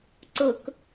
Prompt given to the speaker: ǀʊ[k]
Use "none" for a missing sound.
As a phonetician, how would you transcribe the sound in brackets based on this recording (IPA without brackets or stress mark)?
k